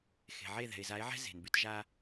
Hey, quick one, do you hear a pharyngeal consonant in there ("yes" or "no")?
yes